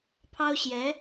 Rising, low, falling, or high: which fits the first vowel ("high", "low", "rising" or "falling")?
high